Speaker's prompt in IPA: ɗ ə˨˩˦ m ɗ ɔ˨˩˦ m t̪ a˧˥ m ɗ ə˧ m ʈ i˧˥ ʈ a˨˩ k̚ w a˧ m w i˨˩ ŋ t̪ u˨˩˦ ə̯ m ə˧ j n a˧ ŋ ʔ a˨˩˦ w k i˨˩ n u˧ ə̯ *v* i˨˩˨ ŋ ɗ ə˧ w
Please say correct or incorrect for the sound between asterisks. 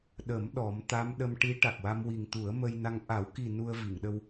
correct